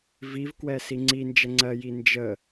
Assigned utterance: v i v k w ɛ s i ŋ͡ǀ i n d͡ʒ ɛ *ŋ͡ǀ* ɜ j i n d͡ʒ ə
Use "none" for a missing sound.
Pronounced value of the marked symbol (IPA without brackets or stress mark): ŋ͡ǀ